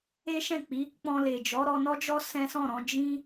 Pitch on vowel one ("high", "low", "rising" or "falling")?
high